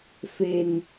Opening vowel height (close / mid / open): mid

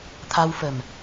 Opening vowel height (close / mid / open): open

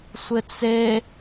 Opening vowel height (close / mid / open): close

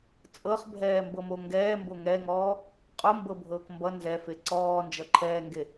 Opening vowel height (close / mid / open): mid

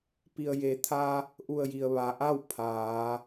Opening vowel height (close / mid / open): close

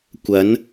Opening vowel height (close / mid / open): open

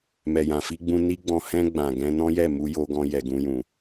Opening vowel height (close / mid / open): mid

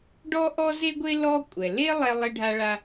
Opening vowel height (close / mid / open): mid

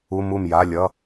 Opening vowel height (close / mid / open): close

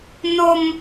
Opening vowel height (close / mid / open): mid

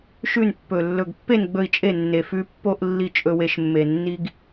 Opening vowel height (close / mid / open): close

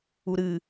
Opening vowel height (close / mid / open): close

